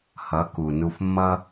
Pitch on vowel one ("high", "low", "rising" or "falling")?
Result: rising